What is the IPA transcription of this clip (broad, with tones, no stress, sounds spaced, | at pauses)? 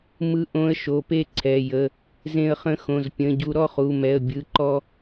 m ɯ˧˥ ʔ õ˧˥ ə̯ ʃ o˩˧˩ p e˥˧ ǀʰ ɛ˩˧˩ j ə˩˧˩ | z ẽ˧ ə̯ χ ə̃˧˥ x õ˩˧˩ z pʲ ə̃˩˧˩ ɟ u˧ ɾ ɔ˥˧ χ u˩˧˩ m ɛ˩˧˩ ə̯ bʲ ɯ˩˧˩ ǃ ɔ˧